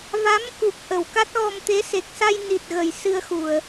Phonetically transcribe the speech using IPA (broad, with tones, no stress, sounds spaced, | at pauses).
v a˧˥ m k u˨˩ k̚ ʔ ə˨˩˨ w k a˦˥ t̚ ɣ ɔ˧ m t̪ e˧˥ s e˨˩ k̚ s a˧ j n i˨˩ t̚ ɣ ə˨˩ j s ɨ˧ ə̯ x u˨˩˨ ə̯